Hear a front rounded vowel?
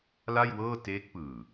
no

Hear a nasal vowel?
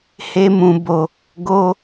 yes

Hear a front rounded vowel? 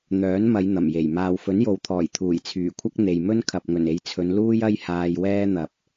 yes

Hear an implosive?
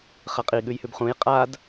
yes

